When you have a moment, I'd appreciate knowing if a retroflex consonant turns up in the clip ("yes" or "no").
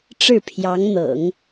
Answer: yes